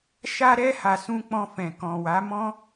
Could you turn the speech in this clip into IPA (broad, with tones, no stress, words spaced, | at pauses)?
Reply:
ʃa˧ɾɛ˧ ha˨sũ˧ k͡pɔ̃˧fɛ̃˨ kɔ̃˨wa˨˦mɔ̃˦